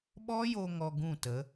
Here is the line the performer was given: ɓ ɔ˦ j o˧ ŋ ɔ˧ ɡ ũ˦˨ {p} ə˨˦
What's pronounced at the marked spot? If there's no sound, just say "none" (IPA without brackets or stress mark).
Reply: t